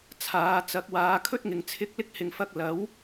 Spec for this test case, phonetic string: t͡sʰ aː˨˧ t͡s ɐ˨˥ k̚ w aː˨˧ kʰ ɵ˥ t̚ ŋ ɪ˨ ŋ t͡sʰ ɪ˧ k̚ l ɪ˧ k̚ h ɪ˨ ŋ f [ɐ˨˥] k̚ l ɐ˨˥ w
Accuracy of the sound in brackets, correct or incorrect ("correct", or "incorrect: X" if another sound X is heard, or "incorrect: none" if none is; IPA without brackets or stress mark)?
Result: incorrect: ɐ˧